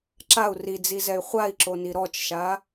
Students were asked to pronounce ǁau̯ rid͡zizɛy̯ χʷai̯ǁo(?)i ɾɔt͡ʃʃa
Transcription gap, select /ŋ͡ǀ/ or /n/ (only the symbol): n